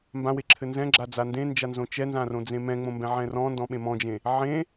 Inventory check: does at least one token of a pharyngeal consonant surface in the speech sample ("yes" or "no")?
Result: yes